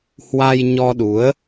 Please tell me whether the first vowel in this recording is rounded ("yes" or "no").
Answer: no